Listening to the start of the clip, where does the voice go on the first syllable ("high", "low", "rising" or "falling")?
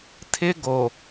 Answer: high